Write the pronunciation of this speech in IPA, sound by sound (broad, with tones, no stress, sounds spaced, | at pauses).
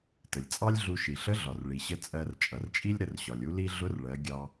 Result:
t ə˩ lʲ t͡sʼ ɑ˥ lʲ ɮ u˧ ʃ i˩ ɬ ə˧˥ ɮ ɒ˩ r ɭ i˩ ɕ ə˧ t͡sʼ ɜ˧ r t͡ʃʼ ʌ˩ r t͡ʃʼ i˥ lʲ ɾ ə˧ r ɕ ɒ˩ lʲ u˥ l i˥ ɮ ʊ˧˥ r ɭ ɜ˩˧ ɡʲ ɑ˧